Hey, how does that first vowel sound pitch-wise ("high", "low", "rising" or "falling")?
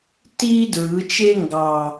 high